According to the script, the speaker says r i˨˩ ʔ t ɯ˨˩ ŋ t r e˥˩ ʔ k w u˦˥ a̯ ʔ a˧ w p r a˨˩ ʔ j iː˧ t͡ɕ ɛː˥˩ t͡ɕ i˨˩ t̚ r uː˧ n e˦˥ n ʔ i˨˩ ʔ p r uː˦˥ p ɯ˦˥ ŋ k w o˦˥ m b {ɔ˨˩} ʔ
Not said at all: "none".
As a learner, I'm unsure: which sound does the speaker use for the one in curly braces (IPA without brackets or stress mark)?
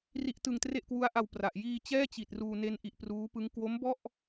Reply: ɔ˥˩